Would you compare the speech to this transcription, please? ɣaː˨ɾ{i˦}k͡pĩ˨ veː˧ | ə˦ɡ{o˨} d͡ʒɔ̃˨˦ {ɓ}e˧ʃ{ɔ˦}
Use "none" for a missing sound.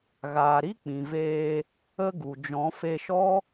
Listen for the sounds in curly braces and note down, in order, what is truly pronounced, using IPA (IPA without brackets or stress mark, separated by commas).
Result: i˦, u˨, f, ɔ˦